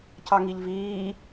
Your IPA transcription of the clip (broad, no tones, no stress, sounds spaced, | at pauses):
c ɑ ŋ i ʎ v iː